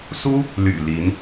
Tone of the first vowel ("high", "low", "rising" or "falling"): high